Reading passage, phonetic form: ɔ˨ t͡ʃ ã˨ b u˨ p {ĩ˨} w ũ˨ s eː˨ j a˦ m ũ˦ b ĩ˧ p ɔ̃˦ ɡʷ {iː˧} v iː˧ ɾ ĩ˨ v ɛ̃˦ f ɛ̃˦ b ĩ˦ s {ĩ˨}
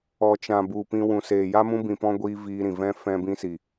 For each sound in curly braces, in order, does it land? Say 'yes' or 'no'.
no, yes, no

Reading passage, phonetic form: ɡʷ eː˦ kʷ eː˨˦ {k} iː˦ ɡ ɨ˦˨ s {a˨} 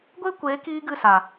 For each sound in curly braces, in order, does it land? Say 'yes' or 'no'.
yes, yes

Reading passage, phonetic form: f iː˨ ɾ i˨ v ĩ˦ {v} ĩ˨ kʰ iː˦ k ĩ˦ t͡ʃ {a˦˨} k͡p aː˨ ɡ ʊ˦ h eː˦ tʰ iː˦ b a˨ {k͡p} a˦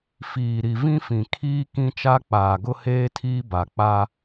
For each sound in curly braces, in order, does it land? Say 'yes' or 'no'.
no, no, yes

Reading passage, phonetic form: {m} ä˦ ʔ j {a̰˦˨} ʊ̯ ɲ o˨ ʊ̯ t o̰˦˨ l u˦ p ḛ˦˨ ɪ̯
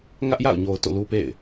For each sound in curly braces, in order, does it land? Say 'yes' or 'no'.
no, yes

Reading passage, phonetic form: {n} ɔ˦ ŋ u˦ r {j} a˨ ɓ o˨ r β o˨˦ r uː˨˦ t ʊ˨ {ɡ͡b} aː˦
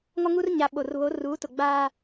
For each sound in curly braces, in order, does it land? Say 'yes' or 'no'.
no, no, yes

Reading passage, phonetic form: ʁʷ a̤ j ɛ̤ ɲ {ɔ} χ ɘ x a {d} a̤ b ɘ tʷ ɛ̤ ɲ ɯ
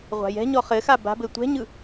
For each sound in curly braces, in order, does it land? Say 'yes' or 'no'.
yes, no

